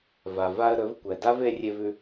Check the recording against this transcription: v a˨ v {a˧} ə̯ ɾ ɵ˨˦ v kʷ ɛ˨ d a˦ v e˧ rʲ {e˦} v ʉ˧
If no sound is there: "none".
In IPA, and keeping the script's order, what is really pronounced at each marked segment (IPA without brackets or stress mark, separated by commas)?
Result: a˧, e˧